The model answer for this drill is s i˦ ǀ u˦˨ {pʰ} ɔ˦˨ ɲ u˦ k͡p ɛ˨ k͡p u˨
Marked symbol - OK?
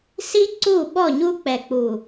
no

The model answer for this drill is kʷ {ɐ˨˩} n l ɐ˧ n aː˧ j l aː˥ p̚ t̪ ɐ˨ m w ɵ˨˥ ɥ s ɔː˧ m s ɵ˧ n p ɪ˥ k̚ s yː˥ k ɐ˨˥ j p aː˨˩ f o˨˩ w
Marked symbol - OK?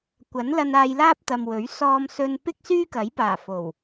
no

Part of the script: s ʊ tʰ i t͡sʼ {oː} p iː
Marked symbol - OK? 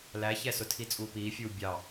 no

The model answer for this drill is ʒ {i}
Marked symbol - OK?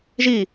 yes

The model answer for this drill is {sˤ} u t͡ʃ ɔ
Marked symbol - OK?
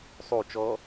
yes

